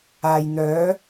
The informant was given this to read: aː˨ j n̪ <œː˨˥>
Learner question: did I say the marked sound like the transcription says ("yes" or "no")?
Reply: yes